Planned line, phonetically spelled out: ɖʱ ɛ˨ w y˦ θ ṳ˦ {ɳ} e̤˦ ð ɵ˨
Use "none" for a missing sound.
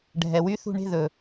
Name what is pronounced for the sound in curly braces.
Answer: ɳ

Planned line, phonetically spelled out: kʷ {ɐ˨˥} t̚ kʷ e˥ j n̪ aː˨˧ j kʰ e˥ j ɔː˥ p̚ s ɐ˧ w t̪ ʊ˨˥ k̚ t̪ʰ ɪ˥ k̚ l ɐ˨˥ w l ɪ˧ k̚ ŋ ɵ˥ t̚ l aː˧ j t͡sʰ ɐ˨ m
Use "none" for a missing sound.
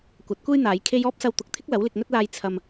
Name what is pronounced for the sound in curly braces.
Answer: ɐ˨˥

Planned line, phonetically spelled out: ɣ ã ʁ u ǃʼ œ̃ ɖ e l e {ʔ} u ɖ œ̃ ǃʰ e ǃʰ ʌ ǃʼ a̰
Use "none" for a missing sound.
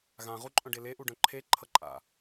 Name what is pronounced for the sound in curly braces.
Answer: ʔ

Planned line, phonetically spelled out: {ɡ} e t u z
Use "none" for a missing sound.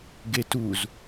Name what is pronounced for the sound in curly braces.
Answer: ɡ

